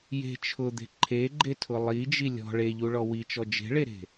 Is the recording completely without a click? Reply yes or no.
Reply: no